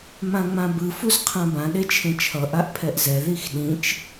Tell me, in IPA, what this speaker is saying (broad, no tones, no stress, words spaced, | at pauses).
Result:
mãŋ͡mãbɯ fuzqʰãbã ɗet͡ʃʰẽt͡ʃʰʌ ʔaʔpʰɛʔzɛ ðixɗĩt͡ʃ